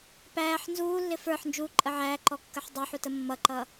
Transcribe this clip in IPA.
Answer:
p æː ħ n z uː lː ɪ f ə˞ ħ n d͡ʒ uː ǃʼ ə ʕ æː ǃ ɔ kː ə ħ dˤ əː ħ u t ə mː ʌ ǃ ʌ

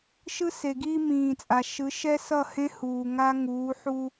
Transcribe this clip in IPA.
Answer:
ʃ ɯ˦ s e˨ ɡ iː˦ m ĩː˨ t͡sʼ a˨ ʃ ɯ˨˦ ʃ ɛ˦ s ʌ˦˨ h ẽ˦ h uː˨ ŋ a˦ ŋ uː˨˦ ħ u˦

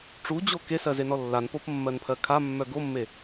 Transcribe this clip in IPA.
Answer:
ʈ͡ʂ u d͡ʑ o k e s ɜ z e n ɔ lː a n p o p mː ɜ n pʰ ɜ kʰ a mː œ ɡ o mː e

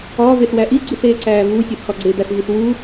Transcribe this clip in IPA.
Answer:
ɒː v e θ w æ ʔ i ɡ͡ǀ u θ eː ǀ æː v u sʲ ɒ θ x ɒ ɡ͡ǀ e d̪ æ θ v i θ w u

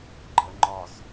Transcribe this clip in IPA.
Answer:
ɡ͡ǃ ə ŋ͡ǃ ɒ s

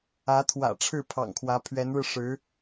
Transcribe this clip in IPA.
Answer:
ä˧˥ t̪ʰ w ä̰˨˩ ʈ͡ʂʰ ɻ̩˥˩ pʰ ɑ̰˨˩ ŋ kʰ w ä˧˥ pʰ ɥ ɛ˧˥ n ɻ ɻ̩˧ ʂ ɻ̩˧˥

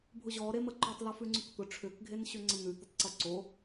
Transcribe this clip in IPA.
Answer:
bʱ ʊ ʑ ɔ ɾ e m ə ǃ ʏ tˤ l o f ʉ ŋ͡ǀ ʉ k t̪ ʊ ʈ͡ʂʰ ʏ k ɡʱ e n ɕ ʏ ŋ͡ǀ ə n̪ ʉ t̪ ə tˤ ǀ ʊ ǀ o

